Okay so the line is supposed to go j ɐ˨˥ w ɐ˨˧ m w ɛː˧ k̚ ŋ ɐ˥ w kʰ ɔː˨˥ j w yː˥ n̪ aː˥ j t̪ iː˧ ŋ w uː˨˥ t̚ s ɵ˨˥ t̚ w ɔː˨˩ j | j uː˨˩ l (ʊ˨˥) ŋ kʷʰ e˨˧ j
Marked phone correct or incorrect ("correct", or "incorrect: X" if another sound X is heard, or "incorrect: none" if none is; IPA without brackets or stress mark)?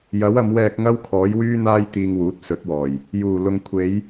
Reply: incorrect: ʊ˨